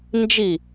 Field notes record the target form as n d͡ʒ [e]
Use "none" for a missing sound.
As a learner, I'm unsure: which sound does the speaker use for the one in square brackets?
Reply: i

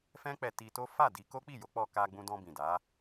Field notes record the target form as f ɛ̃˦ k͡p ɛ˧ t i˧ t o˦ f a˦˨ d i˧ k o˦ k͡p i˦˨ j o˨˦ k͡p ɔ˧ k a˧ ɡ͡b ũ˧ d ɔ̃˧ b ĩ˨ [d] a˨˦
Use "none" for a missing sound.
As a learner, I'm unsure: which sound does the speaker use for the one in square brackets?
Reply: d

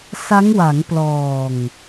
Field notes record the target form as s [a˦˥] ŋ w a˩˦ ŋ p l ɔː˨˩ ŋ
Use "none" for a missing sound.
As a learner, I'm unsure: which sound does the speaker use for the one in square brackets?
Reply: a˦˥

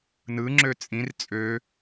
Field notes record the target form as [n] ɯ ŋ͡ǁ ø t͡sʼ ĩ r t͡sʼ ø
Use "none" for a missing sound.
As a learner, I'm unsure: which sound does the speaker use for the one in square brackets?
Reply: n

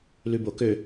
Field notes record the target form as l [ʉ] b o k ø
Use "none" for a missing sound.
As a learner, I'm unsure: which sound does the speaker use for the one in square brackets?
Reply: ʉ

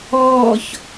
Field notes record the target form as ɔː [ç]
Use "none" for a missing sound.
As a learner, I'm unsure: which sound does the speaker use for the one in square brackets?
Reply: ç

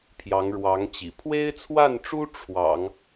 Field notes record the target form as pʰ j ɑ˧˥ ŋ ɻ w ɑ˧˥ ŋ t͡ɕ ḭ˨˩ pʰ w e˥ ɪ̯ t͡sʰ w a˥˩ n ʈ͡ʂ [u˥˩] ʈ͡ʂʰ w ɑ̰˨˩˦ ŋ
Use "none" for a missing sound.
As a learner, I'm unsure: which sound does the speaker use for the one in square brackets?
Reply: u˥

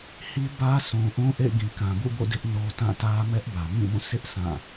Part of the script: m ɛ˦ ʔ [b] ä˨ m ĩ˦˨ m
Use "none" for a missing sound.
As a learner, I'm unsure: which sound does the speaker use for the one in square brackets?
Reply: b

